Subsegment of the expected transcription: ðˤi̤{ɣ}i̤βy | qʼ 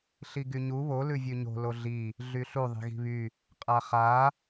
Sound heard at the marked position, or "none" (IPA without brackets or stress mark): ɣ